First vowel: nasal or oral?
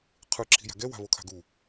oral